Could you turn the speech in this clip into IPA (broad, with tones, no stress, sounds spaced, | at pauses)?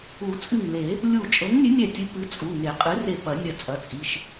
u˨˩˦ t͡sʼ ɨ˧˩ ŋ l e˨˩˦ | lʲ u˧˩ t͡ʃʼ ɤ˨˥ ŋ nʲ ɨ˨˥ nʲ ɛ˧˩ tʲ ɨ˨˥ p ɨ˨˥ t͡sʼ u˩˧˩ ŋ e˨˩˦ qʼ ɨ˨˥ r e˧˩ p ɐ˨˩˦ nʲ ɐ˧˩ t͡sʼ ɐ˩˧˩ t͡sʼ i˩˧˩ ʃ